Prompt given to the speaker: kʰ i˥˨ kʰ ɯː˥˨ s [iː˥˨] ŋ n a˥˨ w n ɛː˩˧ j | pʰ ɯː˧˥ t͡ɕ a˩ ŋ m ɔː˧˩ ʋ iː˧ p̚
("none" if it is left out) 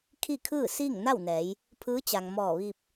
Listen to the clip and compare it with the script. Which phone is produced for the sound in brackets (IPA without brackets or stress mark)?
iː˥˨